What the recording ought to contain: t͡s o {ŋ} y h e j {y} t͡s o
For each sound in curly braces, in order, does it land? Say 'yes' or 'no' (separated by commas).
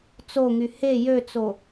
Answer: yes, no